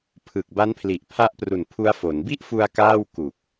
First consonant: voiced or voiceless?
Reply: voiceless